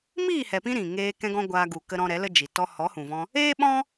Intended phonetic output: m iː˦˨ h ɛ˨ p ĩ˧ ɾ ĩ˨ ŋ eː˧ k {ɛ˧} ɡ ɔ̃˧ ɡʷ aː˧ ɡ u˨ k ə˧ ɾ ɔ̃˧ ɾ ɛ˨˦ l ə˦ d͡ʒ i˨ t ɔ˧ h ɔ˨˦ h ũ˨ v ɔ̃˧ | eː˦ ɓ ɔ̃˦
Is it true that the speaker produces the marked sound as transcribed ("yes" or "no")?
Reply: no